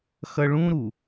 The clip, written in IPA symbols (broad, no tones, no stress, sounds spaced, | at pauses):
x ʌ ɭ ũ ɾ u